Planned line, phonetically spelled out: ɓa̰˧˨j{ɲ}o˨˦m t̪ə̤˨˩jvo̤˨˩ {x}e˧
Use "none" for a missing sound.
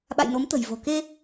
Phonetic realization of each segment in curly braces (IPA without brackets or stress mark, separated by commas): n, k